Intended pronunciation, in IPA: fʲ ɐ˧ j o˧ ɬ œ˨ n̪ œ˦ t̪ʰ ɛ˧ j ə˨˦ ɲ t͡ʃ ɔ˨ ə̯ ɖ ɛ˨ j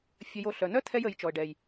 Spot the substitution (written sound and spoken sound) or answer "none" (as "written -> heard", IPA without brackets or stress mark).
ɲ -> j